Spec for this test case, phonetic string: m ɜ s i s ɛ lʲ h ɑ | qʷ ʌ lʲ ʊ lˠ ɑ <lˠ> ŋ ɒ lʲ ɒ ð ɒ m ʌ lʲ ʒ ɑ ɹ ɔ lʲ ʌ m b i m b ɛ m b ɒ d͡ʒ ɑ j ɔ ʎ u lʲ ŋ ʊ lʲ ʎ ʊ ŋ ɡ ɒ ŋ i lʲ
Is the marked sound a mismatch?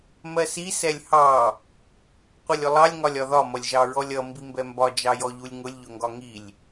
yes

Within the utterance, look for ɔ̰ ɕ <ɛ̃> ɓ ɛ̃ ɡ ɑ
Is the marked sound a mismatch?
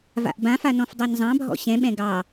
no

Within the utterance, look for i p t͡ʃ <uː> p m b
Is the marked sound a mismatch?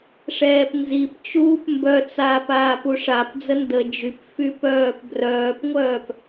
no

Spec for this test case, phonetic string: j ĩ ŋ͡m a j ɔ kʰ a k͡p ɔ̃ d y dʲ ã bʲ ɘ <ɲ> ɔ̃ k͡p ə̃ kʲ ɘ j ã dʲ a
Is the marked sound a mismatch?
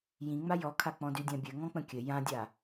yes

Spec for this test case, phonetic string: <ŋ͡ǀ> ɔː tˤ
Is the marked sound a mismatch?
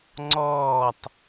no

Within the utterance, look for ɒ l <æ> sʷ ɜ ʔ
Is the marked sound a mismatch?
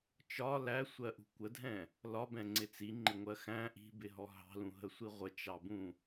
no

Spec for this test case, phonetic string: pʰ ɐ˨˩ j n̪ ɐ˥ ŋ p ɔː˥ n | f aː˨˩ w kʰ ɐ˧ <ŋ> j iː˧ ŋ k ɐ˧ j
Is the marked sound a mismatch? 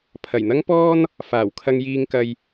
no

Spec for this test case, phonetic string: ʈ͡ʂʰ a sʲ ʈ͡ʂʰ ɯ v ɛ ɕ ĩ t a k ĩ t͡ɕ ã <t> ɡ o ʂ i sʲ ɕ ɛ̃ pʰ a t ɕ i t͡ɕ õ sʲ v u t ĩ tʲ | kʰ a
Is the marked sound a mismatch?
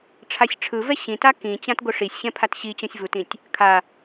no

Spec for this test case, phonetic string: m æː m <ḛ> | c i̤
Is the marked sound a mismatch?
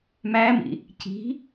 yes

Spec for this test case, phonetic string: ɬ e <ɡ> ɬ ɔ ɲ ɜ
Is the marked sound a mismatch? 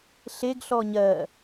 no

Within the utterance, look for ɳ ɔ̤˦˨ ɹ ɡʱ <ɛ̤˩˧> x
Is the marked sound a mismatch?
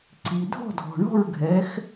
yes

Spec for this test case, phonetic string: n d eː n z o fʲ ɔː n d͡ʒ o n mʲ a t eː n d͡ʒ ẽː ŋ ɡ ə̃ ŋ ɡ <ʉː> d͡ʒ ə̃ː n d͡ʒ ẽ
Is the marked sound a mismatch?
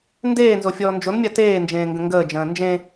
yes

